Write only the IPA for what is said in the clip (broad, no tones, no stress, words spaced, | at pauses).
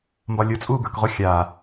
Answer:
mbɒlʲʊ t͡sʼuːɡə˞kʁʊ xʲa